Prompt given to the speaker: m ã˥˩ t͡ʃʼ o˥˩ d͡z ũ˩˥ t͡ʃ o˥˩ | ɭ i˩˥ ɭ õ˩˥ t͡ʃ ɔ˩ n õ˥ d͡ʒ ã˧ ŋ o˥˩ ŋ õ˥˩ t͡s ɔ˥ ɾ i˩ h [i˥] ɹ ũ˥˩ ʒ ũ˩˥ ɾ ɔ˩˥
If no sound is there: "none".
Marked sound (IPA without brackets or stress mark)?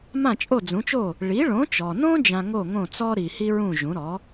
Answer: i˥